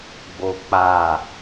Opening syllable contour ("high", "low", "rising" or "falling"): high